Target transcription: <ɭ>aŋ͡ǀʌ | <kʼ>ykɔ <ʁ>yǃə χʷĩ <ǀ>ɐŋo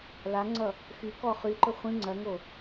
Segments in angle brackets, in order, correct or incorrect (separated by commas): incorrect, incorrect, incorrect, incorrect